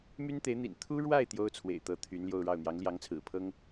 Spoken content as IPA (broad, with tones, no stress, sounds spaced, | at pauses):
m y˥ n t̪ e˧˥ ɪ̯ n̪ ḭ˨˩ n t̪ʰ u˥ ɻ w a˥˩ ɪ̯ t̪ j o˥ ʊ̯ t͡sʰ w ḛ˨˩ ɪ̯ t̪ ɤ˧˥ t̪ʰ y˧˥ n l j o˥˧ ʊ̯ ɻ ɑ˥˩ ʊ̯ n̪ j ɑ˧˥ ŋ l j ɑ˧˥ ŋ t͡sʰ ɹ̩˨˩ pʰ ɤ˥ ŋ